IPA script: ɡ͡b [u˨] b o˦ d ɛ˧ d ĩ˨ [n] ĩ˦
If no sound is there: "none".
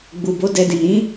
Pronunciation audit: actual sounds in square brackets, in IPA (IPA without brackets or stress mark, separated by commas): u˨, n